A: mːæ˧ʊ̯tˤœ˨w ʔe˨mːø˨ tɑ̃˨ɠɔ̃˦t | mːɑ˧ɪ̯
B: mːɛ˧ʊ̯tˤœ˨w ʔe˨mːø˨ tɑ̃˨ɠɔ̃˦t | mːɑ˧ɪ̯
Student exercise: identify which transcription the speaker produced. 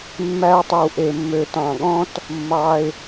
A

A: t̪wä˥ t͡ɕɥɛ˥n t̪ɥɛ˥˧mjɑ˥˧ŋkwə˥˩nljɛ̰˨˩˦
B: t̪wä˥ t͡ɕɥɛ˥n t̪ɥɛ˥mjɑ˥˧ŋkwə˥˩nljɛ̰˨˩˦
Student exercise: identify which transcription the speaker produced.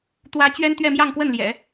A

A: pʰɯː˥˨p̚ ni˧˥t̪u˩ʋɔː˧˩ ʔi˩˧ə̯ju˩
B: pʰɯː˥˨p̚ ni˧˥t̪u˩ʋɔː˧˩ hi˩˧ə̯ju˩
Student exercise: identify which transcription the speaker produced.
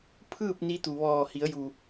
B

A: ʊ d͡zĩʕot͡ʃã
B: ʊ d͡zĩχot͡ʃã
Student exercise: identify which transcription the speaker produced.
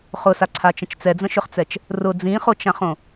B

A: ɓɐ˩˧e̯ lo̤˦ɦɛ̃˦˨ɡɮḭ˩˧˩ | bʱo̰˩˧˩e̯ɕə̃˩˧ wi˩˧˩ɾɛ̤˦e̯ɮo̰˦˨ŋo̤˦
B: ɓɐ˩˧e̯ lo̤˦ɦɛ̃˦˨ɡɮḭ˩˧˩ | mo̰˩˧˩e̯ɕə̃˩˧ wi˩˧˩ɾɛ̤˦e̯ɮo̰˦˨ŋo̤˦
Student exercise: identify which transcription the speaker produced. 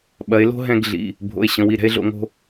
A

